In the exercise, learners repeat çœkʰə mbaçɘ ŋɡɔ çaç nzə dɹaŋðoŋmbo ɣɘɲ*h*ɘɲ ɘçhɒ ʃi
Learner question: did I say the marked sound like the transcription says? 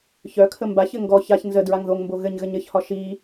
no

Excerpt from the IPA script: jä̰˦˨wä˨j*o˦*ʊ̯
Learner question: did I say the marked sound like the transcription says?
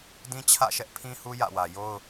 yes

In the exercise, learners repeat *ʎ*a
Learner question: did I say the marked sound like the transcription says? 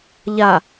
yes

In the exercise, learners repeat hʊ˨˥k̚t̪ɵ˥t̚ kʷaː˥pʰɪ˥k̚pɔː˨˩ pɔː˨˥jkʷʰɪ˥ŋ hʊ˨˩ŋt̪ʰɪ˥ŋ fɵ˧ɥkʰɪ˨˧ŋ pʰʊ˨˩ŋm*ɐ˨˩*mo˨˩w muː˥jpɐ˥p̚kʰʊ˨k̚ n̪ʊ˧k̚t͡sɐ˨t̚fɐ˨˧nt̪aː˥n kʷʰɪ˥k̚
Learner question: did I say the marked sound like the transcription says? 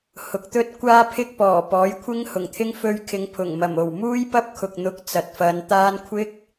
yes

